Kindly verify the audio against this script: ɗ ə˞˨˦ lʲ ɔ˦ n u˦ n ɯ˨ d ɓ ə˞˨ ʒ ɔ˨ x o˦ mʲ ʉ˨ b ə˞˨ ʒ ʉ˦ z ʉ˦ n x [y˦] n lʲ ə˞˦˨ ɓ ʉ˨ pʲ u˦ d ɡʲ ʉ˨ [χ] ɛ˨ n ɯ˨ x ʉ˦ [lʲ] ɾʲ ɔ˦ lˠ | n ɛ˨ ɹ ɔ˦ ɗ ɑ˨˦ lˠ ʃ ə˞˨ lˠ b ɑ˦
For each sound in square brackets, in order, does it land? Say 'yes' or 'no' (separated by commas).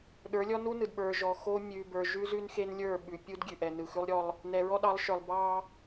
no, no, no